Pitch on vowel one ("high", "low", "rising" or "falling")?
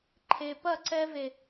low